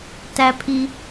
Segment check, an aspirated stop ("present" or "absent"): present